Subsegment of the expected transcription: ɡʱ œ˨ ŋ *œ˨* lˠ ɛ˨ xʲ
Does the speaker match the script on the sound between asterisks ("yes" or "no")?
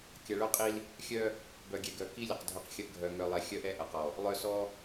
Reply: yes